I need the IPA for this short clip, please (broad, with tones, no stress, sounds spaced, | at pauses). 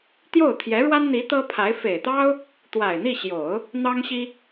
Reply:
t̪ j o˥˩ ʊ̯ t̪ʰ j ɛ˧˥ ɻ w a˥ n n̪ i˧˥ t̪ ɤ˥ pʰ a˧˥ ɪ̯ f e˨˩ ɪ̯ t̪ ɑ˥ ʊ̯ | t̪ w a˨˩ ɪ̯ n̪ i˥˩ ɕ j o˨˩˦ ʊ̯ | n̪ ɑ˥ ŋ ɕ i˥